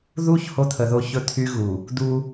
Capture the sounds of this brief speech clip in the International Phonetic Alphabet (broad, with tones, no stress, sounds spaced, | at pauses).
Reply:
ð u˦ ç h o˦ t̪ʰ ə˨ ð o˦ ç ɵ˦ t̪ʰ y˦ ɣ u˨ | d̪ u˦